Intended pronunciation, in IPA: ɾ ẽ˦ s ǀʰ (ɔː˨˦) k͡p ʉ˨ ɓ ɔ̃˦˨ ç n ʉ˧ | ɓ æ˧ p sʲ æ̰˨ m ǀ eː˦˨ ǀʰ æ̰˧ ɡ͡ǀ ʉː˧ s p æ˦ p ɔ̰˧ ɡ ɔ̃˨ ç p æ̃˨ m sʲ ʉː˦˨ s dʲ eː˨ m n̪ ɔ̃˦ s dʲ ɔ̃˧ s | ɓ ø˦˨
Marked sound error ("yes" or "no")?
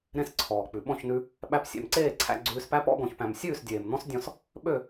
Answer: yes